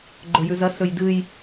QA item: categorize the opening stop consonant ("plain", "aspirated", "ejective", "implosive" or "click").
click